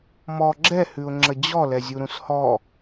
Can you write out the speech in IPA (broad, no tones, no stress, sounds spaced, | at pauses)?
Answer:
m ɔ ɡ͡ǁ ɛ h ʉ ʊ̯ ŋ͡ǁ ə d͡ʑ ɔ l ɛ zʲ u ɾ ũ s h ɔ